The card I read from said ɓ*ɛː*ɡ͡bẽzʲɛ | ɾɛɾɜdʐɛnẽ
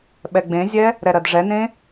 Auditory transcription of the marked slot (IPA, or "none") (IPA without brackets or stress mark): ɛ